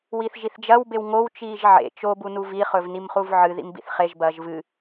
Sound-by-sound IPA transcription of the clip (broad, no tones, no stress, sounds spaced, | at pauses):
w i θ ʒ i θ d͡ʒ ɐ w b e w ŋ o w t͡ʃ iː ʒ ʕ ḛ t͡ʃ o b u n u v i χ ɵ v n i m χ u v ʕ ɨ ð ḭ m b ḭ θ χ e ʒ b ɐː ʒ v ɨ